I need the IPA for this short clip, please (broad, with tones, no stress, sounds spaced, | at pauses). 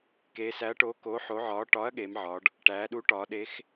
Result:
k eː˩˧ s æ˨˥ ɐ̯ ʈ oː˨˥ k oː˨˥ ħ o˨˥ ʕ ɒː˨˥ ʈ ɒ˨˥ ɐ̯ ɠ eː˩˧ m ʕ ɒ˩˧ ɖ | ʈ æː˩˧ ɗ u˨˥ ʈ ɒː˩˧ ɗ e˨˥ x